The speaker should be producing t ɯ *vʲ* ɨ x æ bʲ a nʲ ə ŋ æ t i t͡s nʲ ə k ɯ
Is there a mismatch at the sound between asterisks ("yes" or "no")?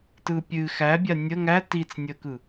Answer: yes